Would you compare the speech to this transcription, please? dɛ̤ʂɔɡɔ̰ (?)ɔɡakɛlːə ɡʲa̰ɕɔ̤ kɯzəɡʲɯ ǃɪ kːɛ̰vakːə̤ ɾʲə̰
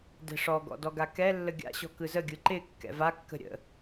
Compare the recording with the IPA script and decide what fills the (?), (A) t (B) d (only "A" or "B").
B